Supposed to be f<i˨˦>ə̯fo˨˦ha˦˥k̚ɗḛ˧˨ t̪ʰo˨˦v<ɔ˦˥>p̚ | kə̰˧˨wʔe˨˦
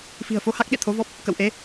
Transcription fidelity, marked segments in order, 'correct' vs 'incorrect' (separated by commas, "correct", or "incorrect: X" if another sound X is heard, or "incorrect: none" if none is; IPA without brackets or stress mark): incorrect: i̤˨˩, correct